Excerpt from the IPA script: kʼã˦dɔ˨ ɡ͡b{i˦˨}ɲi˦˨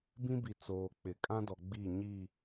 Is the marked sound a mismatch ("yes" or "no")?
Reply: no